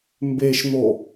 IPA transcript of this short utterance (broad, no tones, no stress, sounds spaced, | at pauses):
m b e ʃ n̪ o